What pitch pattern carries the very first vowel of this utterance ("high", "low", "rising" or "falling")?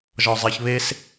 low